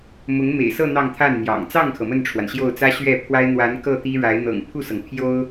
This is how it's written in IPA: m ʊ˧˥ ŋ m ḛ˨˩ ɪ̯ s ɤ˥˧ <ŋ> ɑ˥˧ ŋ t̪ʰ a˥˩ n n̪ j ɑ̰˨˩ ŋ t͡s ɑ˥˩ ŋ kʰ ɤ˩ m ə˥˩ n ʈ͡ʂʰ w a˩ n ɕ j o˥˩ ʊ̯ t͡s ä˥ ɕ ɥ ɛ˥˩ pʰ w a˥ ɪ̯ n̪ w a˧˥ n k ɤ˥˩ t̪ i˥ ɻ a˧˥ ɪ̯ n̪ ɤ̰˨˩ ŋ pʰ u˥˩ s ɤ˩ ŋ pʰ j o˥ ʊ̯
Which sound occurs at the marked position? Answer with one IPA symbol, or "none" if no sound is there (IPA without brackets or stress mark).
n̪